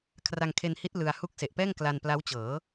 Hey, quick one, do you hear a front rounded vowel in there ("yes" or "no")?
no